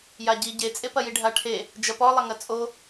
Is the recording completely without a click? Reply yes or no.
yes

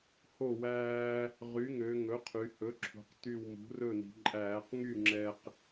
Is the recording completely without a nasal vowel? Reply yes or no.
yes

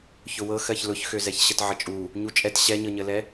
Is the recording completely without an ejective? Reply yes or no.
no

